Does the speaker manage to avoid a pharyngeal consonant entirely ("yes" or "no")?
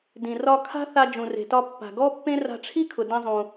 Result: yes